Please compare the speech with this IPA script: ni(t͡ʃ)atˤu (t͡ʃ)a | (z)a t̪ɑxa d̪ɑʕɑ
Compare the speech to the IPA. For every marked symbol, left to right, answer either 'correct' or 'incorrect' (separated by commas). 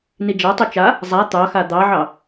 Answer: incorrect, correct, incorrect